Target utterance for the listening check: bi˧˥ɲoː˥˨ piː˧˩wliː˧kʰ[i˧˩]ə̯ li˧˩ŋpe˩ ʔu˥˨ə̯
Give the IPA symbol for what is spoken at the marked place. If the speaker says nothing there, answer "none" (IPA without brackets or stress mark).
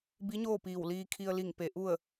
i˧